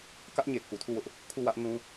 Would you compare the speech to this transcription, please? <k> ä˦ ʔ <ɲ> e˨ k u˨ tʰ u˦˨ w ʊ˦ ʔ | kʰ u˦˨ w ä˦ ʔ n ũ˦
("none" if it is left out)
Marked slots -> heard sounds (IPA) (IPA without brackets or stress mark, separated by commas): k, ɲ